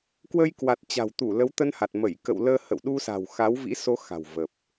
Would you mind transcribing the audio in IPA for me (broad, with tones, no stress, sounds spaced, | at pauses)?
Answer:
k w ə˧ j k w a˨˩ t̚ t͡ɕ a̤˨˩ w t̪ u˧˩ l ə˨˦ w t̪ ə˧ n h a˨˩ t̚ m ə˧˩ j k ə̰˧˨ w l əː˧ h ə̰˧˨ w ɗ u˧ s a̤˨˩ w x a˨˦ w v ḭ˧˥ s o˨˦ x a̤˨˩ w v ə˨˩ p̚